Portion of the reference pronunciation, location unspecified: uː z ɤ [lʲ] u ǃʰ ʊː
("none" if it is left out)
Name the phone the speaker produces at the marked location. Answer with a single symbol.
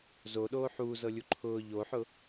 lʲ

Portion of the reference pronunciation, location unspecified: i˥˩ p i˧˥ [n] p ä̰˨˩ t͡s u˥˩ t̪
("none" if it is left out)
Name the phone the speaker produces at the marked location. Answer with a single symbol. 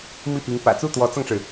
ŋ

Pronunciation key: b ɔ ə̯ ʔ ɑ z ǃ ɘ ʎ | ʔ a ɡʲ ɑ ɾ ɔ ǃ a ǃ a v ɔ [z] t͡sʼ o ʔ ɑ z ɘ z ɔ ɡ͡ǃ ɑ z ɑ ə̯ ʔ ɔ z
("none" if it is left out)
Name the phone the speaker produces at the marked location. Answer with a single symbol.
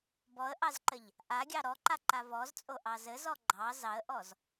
z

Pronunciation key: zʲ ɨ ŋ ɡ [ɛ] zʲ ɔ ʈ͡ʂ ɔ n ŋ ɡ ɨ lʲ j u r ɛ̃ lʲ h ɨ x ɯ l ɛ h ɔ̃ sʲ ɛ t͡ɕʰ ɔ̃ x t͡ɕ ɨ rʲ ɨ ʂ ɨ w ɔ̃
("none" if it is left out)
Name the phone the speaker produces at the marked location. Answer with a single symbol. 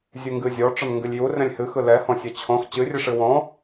ɨ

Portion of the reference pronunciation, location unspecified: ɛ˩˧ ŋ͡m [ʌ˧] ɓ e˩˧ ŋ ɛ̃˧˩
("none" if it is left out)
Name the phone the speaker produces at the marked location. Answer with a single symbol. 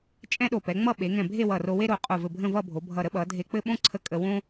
ʌ˥˧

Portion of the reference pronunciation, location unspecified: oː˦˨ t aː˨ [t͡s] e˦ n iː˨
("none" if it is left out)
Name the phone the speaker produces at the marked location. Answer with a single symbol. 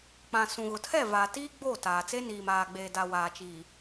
t͡s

